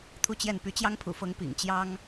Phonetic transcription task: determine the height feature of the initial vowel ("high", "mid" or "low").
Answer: high